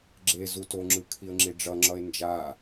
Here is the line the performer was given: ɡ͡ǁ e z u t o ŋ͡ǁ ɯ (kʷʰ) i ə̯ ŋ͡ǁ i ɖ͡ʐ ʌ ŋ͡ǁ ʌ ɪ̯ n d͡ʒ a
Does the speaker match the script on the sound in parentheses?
no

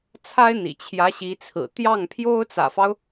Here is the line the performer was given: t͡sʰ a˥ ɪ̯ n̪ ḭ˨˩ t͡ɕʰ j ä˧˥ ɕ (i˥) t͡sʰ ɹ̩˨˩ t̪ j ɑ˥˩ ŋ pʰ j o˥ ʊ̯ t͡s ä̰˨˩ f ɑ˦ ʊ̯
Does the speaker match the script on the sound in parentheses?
no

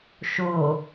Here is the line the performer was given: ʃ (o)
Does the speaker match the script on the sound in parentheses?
yes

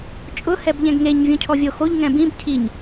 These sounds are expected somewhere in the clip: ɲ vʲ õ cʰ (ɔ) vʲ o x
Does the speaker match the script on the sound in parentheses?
yes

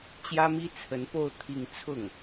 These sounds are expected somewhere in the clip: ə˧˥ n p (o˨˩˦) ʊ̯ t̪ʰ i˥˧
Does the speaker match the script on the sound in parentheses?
no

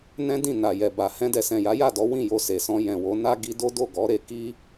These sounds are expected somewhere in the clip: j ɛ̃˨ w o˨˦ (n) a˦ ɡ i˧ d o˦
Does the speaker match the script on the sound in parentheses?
yes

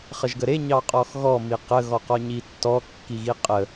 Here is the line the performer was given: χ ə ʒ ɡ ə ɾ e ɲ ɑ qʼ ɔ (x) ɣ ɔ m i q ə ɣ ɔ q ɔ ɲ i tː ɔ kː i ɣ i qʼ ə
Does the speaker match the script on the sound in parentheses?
yes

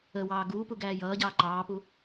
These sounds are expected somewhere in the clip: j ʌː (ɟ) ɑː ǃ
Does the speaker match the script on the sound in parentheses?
yes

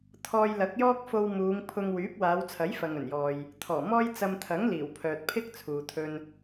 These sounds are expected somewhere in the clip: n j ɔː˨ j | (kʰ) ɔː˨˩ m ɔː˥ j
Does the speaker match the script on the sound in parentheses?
no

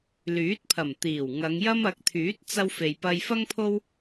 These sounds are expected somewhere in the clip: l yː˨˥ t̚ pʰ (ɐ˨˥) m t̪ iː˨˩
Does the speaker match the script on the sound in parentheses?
no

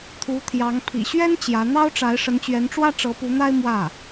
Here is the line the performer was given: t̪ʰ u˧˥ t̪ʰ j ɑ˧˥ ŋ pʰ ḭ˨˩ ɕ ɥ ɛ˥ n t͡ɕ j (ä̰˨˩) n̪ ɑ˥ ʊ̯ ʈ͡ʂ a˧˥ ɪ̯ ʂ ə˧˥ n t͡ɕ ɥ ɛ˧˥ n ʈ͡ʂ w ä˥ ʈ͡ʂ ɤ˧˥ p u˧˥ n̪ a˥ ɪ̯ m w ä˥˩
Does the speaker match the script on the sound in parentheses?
no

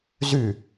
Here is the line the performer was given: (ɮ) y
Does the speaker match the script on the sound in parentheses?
no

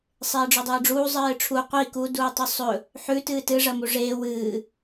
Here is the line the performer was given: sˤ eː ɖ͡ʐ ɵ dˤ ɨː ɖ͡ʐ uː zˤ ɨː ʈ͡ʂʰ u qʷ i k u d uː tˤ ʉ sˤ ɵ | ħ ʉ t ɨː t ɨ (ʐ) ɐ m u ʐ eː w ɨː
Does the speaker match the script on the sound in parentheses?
yes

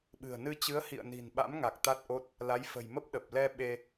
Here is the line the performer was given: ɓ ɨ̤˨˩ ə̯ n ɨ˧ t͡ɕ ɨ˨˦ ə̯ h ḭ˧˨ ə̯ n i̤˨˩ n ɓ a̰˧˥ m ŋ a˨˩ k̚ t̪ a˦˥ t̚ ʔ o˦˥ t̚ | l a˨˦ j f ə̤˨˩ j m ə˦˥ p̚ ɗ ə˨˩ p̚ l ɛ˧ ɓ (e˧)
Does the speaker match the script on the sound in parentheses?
yes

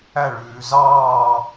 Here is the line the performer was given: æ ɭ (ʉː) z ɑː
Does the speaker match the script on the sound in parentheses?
yes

